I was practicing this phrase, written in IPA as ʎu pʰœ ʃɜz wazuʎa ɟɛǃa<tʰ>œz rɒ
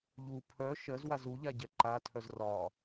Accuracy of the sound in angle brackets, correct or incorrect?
correct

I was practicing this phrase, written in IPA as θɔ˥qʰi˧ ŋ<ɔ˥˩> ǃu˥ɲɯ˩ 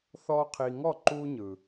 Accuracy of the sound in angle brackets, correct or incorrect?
correct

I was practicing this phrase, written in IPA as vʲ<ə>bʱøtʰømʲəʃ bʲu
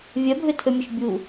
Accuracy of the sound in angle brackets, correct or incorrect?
incorrect: œ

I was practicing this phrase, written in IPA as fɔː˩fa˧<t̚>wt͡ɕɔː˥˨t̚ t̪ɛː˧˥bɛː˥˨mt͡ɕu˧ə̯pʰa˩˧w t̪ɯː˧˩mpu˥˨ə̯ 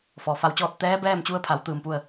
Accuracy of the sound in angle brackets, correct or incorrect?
incorrect: none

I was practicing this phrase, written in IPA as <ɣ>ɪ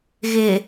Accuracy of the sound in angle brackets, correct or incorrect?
correct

